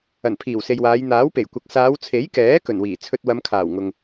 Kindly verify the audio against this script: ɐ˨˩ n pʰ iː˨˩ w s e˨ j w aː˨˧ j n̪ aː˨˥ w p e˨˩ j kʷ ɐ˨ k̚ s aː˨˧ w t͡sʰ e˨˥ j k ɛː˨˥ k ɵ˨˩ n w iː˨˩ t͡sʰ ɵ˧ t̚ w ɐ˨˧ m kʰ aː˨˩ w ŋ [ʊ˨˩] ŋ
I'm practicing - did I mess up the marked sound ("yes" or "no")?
yes